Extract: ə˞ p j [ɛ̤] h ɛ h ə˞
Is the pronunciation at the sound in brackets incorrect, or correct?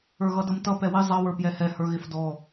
incorrect